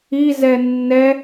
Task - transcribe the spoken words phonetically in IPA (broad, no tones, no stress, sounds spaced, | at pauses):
i z ɛ nː ɛ